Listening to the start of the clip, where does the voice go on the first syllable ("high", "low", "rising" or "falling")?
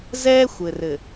high